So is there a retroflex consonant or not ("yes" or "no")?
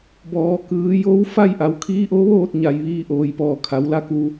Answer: no